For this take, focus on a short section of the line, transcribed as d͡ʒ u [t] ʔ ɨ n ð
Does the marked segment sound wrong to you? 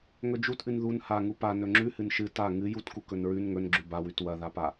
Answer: no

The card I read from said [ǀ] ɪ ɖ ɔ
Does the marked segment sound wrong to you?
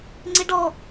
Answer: yes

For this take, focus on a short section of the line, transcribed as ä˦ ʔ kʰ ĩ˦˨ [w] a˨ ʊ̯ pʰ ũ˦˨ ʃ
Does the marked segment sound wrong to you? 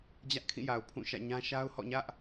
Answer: yes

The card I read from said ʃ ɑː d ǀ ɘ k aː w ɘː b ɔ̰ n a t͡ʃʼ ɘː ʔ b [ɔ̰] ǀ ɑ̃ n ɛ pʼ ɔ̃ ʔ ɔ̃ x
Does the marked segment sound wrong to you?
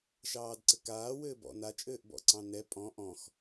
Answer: no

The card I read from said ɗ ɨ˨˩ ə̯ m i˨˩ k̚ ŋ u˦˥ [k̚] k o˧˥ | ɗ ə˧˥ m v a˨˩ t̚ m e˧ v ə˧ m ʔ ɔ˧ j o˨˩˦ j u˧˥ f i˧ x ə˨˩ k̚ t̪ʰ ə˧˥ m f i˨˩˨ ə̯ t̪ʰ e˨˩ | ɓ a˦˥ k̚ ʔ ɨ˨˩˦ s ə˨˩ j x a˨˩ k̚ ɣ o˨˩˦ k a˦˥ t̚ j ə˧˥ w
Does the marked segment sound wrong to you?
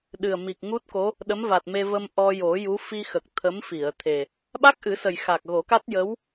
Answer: yes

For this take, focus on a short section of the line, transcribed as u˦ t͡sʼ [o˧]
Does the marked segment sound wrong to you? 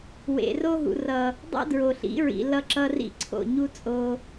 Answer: no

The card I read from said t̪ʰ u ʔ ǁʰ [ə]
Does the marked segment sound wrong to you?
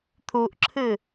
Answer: yes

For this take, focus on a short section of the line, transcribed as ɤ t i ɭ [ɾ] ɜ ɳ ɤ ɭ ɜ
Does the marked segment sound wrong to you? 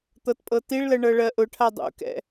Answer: yes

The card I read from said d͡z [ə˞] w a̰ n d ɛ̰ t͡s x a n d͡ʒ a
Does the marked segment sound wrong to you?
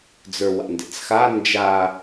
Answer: no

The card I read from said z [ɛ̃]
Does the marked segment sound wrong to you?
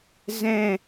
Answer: no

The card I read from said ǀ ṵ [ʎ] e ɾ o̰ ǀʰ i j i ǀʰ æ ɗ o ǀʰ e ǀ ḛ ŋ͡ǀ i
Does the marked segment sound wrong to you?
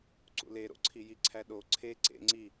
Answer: yes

